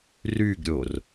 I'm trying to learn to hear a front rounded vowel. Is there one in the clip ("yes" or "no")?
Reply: yes